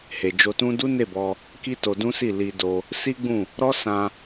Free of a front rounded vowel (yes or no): yes